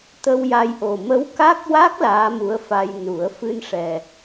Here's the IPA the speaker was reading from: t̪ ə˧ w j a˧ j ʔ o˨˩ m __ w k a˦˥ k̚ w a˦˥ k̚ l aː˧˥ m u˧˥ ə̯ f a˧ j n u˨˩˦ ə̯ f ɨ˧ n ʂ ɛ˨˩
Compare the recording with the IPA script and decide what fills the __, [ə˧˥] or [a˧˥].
ə˧˥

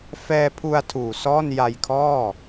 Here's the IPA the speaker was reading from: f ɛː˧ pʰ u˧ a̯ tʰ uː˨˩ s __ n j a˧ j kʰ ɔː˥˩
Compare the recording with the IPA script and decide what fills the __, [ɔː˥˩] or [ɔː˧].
ɔː˥˩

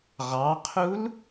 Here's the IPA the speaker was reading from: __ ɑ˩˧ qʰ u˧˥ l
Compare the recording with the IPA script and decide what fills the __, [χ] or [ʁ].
ʁ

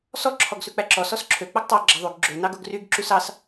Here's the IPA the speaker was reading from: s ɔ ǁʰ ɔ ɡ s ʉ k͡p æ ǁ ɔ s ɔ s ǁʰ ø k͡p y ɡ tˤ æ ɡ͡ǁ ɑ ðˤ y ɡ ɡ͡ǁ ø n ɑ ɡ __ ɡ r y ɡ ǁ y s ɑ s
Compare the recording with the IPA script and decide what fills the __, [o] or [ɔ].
o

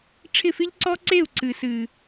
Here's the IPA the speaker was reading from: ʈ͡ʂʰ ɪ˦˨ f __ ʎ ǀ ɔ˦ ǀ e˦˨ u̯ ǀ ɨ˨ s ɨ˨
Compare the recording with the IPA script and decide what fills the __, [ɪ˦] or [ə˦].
ɪ˦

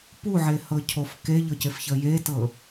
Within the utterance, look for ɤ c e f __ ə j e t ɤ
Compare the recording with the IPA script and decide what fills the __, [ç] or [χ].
ç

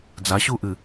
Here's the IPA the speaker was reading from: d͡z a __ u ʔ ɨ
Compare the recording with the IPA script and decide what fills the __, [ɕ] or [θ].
ɕ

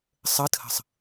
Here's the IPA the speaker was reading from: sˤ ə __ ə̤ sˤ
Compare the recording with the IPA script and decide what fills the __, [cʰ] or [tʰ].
tʰ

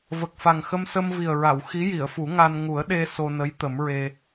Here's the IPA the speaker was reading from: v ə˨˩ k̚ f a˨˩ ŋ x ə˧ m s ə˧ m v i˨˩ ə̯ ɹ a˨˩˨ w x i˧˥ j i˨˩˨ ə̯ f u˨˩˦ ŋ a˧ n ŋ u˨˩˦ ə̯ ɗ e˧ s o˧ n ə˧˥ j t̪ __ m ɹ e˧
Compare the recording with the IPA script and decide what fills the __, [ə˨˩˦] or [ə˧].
ə˨˩˦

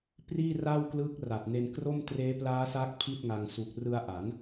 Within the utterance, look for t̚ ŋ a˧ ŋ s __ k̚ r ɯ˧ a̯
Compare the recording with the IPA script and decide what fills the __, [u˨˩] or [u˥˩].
u˨˩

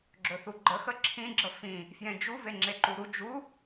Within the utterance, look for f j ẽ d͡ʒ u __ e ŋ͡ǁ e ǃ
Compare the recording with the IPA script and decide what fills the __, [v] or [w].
v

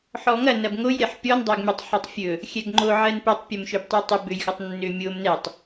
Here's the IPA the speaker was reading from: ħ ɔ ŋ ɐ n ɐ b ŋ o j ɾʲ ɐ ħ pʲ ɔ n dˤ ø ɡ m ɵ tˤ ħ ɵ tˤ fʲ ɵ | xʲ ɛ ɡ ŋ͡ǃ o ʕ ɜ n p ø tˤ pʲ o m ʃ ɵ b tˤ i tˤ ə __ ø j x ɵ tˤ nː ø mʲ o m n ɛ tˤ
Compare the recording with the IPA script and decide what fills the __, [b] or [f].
b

